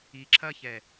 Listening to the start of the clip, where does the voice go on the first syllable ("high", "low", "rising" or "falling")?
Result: low